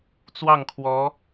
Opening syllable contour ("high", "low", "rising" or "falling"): falling